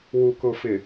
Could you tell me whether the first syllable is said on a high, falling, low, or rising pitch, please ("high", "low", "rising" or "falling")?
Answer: low